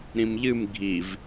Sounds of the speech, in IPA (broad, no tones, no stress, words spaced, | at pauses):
ɾĩmʎɨm ɡʱiv